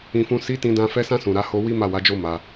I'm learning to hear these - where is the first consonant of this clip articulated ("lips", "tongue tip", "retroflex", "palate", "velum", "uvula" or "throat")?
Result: lips